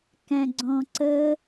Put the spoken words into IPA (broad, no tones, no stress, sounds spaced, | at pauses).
k æ̃ ɡ͡ǀ ɔ̃ ǀ ə